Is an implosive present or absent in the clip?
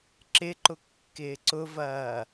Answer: absent